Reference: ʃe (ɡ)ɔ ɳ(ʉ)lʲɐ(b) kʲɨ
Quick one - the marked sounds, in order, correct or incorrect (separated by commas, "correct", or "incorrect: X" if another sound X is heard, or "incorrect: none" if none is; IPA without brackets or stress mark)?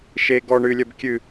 correct, incorrect: ɨ, correct